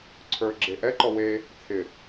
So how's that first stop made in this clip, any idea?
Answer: click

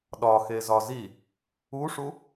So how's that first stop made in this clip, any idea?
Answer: implosive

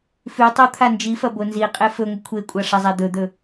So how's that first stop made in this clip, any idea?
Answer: plain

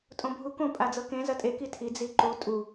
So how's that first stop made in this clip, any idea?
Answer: ejective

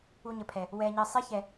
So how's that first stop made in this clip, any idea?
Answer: aspirated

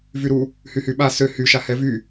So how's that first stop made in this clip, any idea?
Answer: implosive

